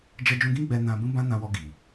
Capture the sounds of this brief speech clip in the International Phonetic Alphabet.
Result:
d͡ʒɛ˧d͡ʒũ˧ɡĩ˦ ɡ͡bɛ˧nã˧ bũ˦bã˦nã˧wɔ˧ ɡi˨

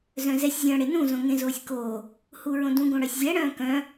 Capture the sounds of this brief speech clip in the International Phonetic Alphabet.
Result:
zœ̃zɛsʲ zʲœ̃ ɽenũ zõŋẽzoːsʲkoː | huɹõdũ ɡõɽœsʲzʲɛ ɽœ̃ːkœ̃

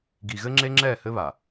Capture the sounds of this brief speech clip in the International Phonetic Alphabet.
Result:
ɡi˨ɣɘ˦ŋ͡ǁe˦ ŋ͡ǁɛː˦˨hɘ˦βa˨

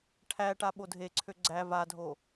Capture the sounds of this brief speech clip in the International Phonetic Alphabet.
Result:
ʈʰæʈa ɓodʱeǀʰø ɡ͡ǀæ vadʱo

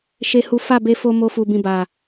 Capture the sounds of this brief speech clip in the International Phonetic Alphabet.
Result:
ʃe˦hu˦ fa˦˨be˧fo˧ mo˦fu˧bĩ˧ ba˨

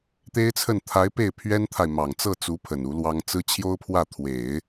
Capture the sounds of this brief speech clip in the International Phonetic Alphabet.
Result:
t̪e˥ɪ̯t͡sʰə˥˩n t̪ʰa˧˥ɪ̯ pe˥˩ɪ̯ pʰɥɛ˥nt̪ʰa˨ɪ̯ mɑ˨˩ŋt͡sɤ˥˩t͡su˧˥ pʰə˨˩nu˧˥lwɑ˥ŋ t͡sɹ̩˥ t͡ɕʰjo˥ʊ̯pʰwä˥˩ t̪ʰwe˨˩˦ɪ̯

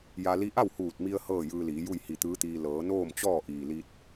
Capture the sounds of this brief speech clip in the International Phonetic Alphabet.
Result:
ja˧ li˧ʔa˥˨w huː˧˩t̚mi˧ə̯ hɤː˥˨jɯː˧liː˩˧ju˥˨j hi˧˩t̪ɯː˧˥t̪iː˧ lɤː˩˧noː˥˨mt͡ɕɔː˥˨ ʔiː˩ li˧t̚

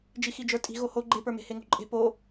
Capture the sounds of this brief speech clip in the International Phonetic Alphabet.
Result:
d͡ʒixid͡ʒə˞tʼi̤ ɣoho ɡ͡ǃepə˞me̤ heŋo̤ǃʼe̤ po

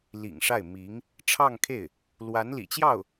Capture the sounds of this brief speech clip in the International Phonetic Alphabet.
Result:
lḭ˨˩ŋʂa˥˩ɪ̯ mi˧˥ŋ | ʈ͡ʂʰɑ˥˧ŋkʰe˥˩ɪ̯ | lwa˧˥nlḭ˨˩t͡ɕjɑ˥˩ʊ̯

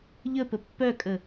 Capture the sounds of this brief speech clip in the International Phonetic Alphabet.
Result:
ʎəpə pːœkʼə

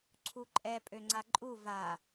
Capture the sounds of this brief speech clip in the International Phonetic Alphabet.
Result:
ǀʰuǃʼɛ pʼøŋ͡ǀaǃʼu va

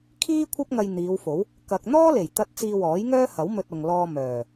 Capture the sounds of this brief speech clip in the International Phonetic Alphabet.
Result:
kʰiː˥ kʷʰɐ˥p̚ŋɐ˧j n̪iː˨˧wfo˨˥w | kɐ˨k̚n̪ɔː˥le˨˩j t̪ɐ˥t̚ t͡siː˧wɔː˨˥jŋœː˥hɐ˨˥w mɵ˧t̚ʊ˨ŋlɔː˧ mœː˨˩

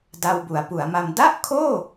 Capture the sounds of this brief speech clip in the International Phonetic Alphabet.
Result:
da˧wbu˩˦a̯pu˩˦a̯ma˧m da˥˩ʔkʰoː˥˩

